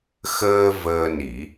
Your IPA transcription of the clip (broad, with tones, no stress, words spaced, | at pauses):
xəː˧ vəː˧ni˨˩˦